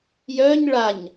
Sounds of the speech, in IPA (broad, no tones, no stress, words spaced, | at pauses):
jœɲ ɭaɲ